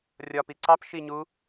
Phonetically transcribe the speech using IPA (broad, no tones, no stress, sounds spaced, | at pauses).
rʲ ɒ p i ǀ ɑ p ʃ i ɲ u